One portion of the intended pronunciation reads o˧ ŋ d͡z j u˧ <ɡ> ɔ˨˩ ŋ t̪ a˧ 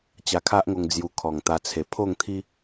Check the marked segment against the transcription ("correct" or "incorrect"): incorrect